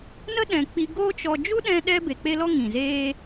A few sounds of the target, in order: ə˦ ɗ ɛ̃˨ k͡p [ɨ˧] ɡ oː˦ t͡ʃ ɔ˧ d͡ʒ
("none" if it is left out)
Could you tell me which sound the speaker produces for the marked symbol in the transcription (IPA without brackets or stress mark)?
i˧